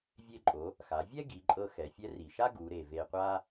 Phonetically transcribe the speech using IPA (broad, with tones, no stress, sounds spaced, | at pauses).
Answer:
vʲ e˧ ǃʼ o˩˧ | x a˩˧ vʲ ɛ˥ ɡ i˩˧ ǃʼ ɤ˧ x ɛ˩˧ fʲ ɛ˧˥ r i˩ ʃ a˥ ɡ u˩˧ ɾ e˩ v e˧ qʷ a˥